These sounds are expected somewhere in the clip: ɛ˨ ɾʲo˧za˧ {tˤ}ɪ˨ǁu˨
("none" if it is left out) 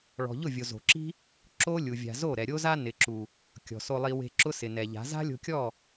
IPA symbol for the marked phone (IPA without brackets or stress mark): n